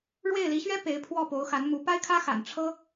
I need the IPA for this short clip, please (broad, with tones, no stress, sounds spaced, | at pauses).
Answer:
ɻ w e˥˩ ɪ̯ l i˧˥ ɕ ɥ ɛ˥ p e˧˥ ɪ̯ pʰ w ɔ˥˩ p o˧˥ ʊ̯ x a˧˥ n m u˧˥ p a˥ ɪ̯ kʰ ä˥ x a̰˨˩ n ʈ͡ʂʰ ɤ˥